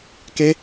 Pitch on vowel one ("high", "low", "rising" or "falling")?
high